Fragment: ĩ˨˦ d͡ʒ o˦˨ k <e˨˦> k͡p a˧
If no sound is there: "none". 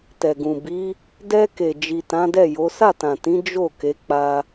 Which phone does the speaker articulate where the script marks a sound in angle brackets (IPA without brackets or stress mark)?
e˨˦